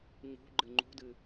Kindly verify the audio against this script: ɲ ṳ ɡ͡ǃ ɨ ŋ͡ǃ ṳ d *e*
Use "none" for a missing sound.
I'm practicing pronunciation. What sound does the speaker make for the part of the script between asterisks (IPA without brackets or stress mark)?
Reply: ɨ